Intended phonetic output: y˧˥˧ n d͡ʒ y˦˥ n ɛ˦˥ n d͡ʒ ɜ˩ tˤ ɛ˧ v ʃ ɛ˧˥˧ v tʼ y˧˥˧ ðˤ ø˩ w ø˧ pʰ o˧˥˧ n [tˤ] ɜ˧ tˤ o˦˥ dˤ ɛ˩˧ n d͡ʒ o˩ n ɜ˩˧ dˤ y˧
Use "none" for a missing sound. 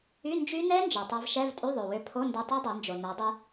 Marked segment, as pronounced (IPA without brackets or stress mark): d